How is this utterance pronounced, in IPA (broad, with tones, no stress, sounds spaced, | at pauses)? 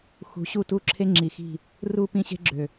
x ṳ˨˦ ɕ u˦˨ t u˦ ǁʰ e˦ ŋ͡ǁ i˨ x i̤˦˨ | r u˦˨ p ĩ˦ ɕ e̤˦ ɡ͡ǁ ø˨